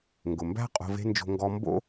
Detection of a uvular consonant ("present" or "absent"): present